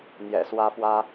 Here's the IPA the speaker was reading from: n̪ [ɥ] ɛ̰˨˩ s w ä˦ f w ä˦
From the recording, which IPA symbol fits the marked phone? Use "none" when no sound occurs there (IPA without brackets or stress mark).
j